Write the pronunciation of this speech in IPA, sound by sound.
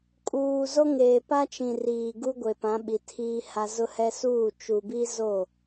kʼ uː˨ z o˦ ŋ eː˨ p a˦ t͡ʃ ĩ˨ r iː˨ ɡ u˦ ɡʷ e˨ p ã˨˦ ɓ i˨ tʰ iː˦ h a˦ z ʊ˦ h ɛ˦ s uː˦˨ t͡ʃ u˨ b i˦ z o˦˨

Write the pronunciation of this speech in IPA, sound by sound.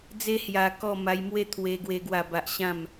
d͡z e˦ h j a˧ k ɔ˥˧ m a˧ j m w e˦ t̪ʰ w e˧ ɡ w e˦ ɡ w a˥˧ b a˦ ʔ ɕ ã˥˧ m

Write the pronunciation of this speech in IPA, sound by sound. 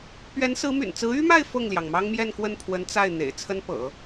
p ɥ ɛ˧˥ n s ɹ̩˧˥ m y̰˨˩ n t͡s ɹ̩˧˥ y˥ m a˥˧ ɪ̯ f ɤ˥˩ ŋ l j ɑ˩ ŋ m ɑ˥ ŋ m j ɛ˥˧ n k w ə˥˩ n pʰ w ə˧˥ n t͡s a˥˩ ɪ̯ n̪ ḛ˨˩ ɪ̯ t͡sʰ ə˥ n p ɤ̰˨˩˦

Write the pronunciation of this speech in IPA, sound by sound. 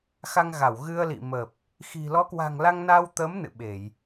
x a˧ ŋ ɣ a˧˩ w ɣ ɨ˧ ə̯ l ḭ˧˨ m ə˨˩ p̚ | x i̤˨˩ l ɔ˨˦ k w a̤˨˩ ŋ l a˧ ŋ n a˧ w t̪ ə˨˦ m n ɨ̰˧˨ ɓ e˧˩˨ j

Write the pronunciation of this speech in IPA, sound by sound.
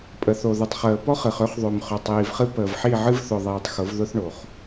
pʼ ə˨ θ o˨ ð ʊ˨ tˤ χ əː˨ p ɔ˦ χ ɨ˨ χ ø˦ χ ðˤ ø˨ m χ ø˨ tˤ iː˨ v χ ɨ˦ p əː˨ v ħ i˦˨ ʕ ɨ˦ v θ ʊ˨ ðˤ iː˨ tˤ x ʊ˨˦ v ð ʊ˦ θ ɳ o˨ χ

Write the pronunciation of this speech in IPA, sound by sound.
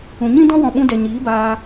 ũ˨ ɲ ĩ˦ d ɔ̃˦ w ɔ̃˧ ɓ ũ˧ d ɛ˨ ɲ iː˨˦ b aː˧

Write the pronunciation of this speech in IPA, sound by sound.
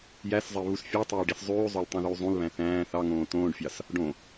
j æ s zˤ e β u s fʲ ɑ tˤ øː ɖ i s zˤ yː zˤ ø l tˤ ũ ð yː zˤ ũ l β æ̃ θ æ̃ː θ ɑ ŋ õː t õː ɖ fʲ ɑ s | ɖ õ

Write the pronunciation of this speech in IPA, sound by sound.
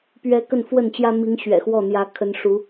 p ɥ ɛ˧˥ k ə˥˧ n f w ə˥˩ n t͡ɕ j ä˥ m i˧˥ ŋ ɕ ɥ ɛ̰˨˩ x w ɔ˥˩ n̪ j ä˧˥ kʰ ə˧˥ n ʂ u˧˥

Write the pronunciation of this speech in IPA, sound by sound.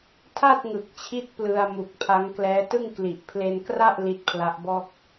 tʰ a˥˩ t̚ ŋ ɯ˨˩ k̚ t͡ɕʰ i˦˥ t̚ p l ɯ˧ a̯ m u˨˩ k̚ pʰ a˦˥ ŋ k l ɛː˦˥ t ɯ˥˩ ŋ k l i˨˩ ʔ pʰ l e˧ n k r a˥˩ ʔ l i˦˥ t̚ pʰ l a˦˥ ʔ b ɔː˥˩ k̚

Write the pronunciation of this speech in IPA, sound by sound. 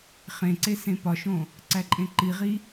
χ ẽ ǀ e s ẽ p ɒ ʃ õ | ǀ æ ǃʼ ẽ ǃ i ʁ i

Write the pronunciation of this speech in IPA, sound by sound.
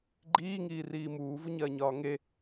ɡ͡ǃ iː ŋ iː r iː m uː v u ɲ ɐː ɲ ɒː ŋ e

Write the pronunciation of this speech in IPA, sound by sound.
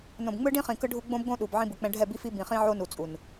n õ˨ b ŋ͡m ɯ˦ ɖ ĩ˦ χ ĩ˨ k ɯ˦ ɖʱ u˦ ɡ͡b õ˦ b ɡ õ˦ ɗ u˨ b ʕ ĩ˦ b ɯ˨ k͡p ɛ̃˦ ɖʱ ɛ˦˨ b i˦ f i˦ b ĩ˨ χ ĩ˦ ʕ o˦ n u˨ t͡sʼ u˨ n

